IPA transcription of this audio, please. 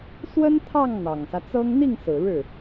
swə˥nt̪ʰɑ˥˩ŋ n̪ɑ˨˩ŋsä˦t͡sɤ˥ŋ n̪i˥˩ŋsɹ̩˨˩ ɻɻ̩˥˩

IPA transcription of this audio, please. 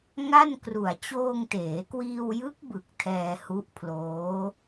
ŋa˥˩nkru˨˩a̯ t͡ɕoː˧ŋteː˩˦kwiː˧wjɯ˦˥k̚ bɯ˨˩k̚ tʰɛː˧hu˦˥ʔpʰloː˦˥

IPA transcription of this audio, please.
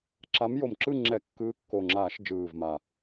ǁa˨˦mjo˨˩mǁɯ˥˨ ŋ͡ǁɛ˧˩˧kːɯː˨˦kːo˨˩ ŋ͡ǁaː˧˩˧ʃd͡ʒɯː˨˩v ma˨˩

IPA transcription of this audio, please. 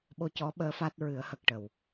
ɓo˧cɔ˧˥ɓəː˧˥ fa˦˥t̚ ɹɨ˨˩˦ə̯hə˨˩k̚ ʈə˨˩w

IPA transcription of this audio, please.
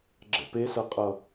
ɡ͡ǁɛ̰pesʌqʼʌ

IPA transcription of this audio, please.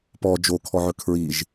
pɔ d͡ʒokʰɔʕɵ kʰɹiʒ

